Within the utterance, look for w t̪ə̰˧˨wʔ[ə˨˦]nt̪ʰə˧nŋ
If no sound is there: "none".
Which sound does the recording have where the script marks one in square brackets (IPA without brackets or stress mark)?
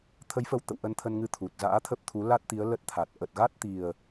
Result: ə˧